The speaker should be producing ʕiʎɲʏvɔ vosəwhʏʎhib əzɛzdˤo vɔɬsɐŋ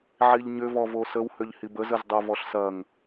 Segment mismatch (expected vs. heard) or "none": ɛ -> ə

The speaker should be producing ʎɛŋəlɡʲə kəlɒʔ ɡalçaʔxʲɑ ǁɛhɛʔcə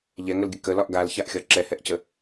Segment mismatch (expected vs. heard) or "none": ɑ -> ɒ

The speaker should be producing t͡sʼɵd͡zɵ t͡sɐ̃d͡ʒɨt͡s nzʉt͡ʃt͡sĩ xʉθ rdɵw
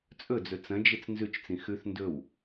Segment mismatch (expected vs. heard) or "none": r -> n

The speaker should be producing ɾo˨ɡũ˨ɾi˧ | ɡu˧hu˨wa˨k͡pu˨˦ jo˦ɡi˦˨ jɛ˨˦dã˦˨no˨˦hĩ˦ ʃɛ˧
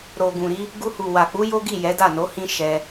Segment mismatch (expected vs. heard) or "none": ã˦˨ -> a˦˨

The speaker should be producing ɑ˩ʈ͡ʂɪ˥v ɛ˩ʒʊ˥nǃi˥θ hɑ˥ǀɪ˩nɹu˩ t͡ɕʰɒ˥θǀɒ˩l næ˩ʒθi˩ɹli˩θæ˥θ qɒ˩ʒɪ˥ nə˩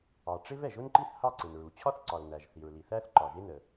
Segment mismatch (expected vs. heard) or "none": q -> ǃ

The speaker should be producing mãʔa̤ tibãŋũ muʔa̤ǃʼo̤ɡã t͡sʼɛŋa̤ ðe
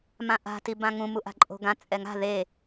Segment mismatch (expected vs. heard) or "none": none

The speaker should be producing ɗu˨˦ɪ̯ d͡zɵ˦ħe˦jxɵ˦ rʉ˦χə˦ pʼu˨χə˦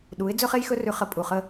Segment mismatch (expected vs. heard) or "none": ħ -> χ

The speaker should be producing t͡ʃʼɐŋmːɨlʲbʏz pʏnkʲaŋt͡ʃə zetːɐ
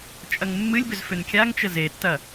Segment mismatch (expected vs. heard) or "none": p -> f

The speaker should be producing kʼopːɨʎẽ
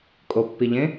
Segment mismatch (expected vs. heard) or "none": ɨ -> i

